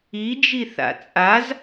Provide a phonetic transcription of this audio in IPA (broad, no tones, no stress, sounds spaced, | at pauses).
i d͡ʒ i θ a̰ t͡sʼ a z